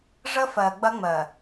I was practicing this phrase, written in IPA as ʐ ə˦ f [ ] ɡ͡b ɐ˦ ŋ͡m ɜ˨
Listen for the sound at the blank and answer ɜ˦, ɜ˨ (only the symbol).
ɜ˨